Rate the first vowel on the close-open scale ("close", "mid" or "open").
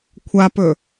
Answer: open